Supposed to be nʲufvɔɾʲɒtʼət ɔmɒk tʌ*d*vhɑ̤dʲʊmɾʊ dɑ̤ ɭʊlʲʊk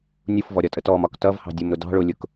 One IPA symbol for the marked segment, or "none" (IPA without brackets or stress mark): none